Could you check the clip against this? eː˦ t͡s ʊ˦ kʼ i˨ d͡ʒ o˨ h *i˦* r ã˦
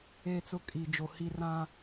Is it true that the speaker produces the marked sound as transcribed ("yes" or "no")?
yes